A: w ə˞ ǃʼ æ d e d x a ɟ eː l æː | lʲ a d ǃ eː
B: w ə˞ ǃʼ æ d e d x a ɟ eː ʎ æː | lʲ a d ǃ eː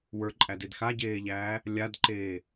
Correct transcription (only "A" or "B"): B